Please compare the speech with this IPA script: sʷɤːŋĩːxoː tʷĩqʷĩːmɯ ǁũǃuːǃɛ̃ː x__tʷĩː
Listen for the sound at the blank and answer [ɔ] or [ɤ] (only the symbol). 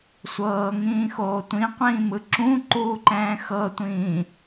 ɤ